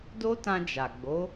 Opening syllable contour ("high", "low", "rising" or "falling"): high